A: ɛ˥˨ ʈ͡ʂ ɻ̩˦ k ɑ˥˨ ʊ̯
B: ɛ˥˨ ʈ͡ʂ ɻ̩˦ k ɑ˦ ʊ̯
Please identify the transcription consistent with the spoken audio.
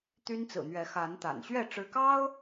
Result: B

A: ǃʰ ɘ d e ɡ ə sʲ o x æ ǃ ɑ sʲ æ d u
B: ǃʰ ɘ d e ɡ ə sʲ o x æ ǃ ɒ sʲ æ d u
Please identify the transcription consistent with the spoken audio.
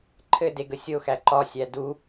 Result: B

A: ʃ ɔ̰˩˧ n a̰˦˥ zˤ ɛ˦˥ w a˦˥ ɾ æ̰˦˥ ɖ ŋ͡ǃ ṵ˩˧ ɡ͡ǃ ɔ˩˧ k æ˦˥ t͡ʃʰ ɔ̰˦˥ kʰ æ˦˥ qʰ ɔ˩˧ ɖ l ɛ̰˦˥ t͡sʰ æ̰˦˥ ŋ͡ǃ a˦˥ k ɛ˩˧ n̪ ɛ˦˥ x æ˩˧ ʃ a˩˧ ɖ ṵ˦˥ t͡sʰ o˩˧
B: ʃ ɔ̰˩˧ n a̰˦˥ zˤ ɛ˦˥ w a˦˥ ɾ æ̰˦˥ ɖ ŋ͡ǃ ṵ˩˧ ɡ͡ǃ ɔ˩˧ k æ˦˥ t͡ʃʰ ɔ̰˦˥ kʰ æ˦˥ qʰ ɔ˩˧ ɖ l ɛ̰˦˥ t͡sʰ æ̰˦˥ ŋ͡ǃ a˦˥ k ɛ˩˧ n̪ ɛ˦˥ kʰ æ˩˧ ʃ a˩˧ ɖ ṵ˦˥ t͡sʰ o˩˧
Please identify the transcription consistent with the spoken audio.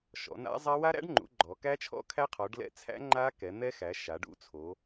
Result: A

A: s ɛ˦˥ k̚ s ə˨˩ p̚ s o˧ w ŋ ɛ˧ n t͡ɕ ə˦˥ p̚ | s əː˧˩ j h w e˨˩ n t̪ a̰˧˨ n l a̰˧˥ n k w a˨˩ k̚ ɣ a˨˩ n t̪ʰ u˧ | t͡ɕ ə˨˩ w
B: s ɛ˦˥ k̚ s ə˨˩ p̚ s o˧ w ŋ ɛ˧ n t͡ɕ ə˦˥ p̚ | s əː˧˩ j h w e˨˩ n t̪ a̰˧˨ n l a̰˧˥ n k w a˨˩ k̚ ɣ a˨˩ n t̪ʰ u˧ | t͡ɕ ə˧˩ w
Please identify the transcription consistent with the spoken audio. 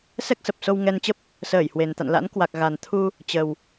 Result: A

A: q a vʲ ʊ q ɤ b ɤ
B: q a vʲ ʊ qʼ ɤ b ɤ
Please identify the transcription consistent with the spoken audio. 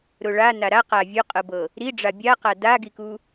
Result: B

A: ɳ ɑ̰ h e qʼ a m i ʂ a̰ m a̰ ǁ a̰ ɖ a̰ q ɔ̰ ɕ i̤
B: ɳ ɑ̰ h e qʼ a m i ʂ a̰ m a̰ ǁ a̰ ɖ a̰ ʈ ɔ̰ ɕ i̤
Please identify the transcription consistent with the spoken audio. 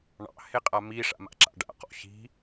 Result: A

